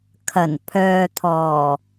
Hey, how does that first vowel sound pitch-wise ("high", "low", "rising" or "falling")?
low